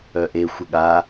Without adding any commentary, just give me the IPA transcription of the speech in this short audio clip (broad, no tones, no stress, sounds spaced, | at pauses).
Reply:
œ ʔ e xʷ ə ɠ a